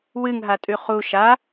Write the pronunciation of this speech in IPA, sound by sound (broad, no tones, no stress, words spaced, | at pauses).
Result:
wɨŋɦatʼʉ χu ʃa